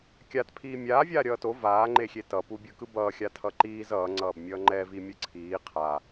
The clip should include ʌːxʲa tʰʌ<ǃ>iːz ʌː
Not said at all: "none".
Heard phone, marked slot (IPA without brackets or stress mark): ǃ